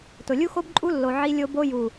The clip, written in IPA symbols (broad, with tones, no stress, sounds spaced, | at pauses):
t ʊ˨ lʲ u˦ x o˦ b ǃʼ u˦ lː o˨ ʕ i˦ lʲ o˦ b o˦ j u˨